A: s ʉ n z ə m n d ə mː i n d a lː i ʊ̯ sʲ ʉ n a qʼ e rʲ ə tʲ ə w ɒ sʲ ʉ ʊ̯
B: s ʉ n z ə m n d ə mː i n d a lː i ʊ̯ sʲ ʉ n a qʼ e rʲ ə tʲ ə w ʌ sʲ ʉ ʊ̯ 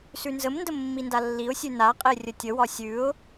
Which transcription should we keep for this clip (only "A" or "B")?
A